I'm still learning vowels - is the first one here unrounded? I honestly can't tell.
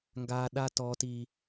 yes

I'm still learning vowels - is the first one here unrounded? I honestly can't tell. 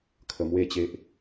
yes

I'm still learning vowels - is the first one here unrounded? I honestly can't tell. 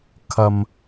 yes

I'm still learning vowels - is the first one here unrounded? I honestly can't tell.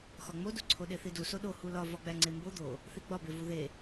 no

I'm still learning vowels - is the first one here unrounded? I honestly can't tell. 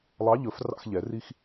yes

